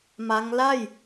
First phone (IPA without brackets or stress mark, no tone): m